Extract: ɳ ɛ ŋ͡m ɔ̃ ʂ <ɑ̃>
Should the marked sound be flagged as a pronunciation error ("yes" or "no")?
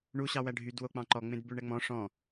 yes